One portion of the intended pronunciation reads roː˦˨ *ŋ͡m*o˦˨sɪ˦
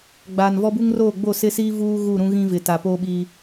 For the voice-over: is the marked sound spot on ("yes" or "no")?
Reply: no